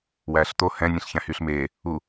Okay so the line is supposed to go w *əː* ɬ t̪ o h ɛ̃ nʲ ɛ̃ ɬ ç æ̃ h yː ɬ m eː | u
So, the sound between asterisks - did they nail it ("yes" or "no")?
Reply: no